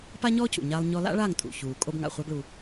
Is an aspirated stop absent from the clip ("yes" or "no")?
yes